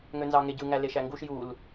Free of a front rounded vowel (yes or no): no